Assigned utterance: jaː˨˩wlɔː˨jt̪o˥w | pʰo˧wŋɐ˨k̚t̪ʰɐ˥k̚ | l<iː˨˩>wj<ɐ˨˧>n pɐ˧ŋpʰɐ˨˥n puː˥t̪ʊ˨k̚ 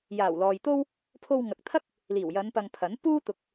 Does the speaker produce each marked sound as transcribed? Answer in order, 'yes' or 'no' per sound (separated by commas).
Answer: yes, yes